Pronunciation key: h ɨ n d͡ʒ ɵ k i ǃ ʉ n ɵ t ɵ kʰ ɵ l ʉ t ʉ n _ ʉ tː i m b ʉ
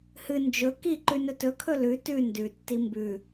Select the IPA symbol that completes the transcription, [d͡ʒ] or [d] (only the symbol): d